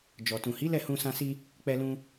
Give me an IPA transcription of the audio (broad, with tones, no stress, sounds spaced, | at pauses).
d͡ʒ ɔ˨ t ũ˨ h i˨˦ l ɛ˦˨ h ũ˧ s ã˧ s i˧ | k͡p ɛ˧ l ũ˧